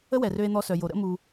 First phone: ə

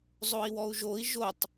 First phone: zˤ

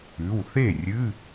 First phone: ʉ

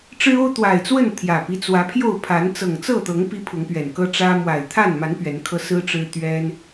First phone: ʈ͡ʂ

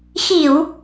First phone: x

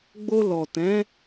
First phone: ɡ͡b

